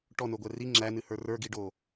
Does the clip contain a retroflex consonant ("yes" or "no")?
yes